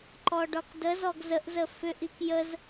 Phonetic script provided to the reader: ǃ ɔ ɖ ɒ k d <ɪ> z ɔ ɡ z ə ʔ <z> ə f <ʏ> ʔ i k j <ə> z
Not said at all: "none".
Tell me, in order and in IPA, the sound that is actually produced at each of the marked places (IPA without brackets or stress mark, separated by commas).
ə, z, ʏ, ə